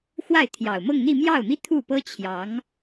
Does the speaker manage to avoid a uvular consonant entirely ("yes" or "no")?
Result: yes